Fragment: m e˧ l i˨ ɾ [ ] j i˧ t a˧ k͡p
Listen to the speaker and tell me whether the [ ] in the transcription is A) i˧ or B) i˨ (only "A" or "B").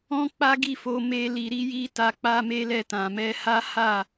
A